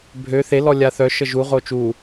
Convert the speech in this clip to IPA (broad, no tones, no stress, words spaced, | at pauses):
bʱø θelɔ lʲaθœʃə ʒuʁo t͡ʃu